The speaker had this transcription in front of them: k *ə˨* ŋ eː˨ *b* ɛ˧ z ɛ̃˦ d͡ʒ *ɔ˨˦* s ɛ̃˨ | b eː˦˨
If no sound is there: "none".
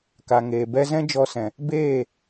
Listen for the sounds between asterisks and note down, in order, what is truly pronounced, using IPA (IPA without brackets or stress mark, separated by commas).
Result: a˨, b, ɔ˧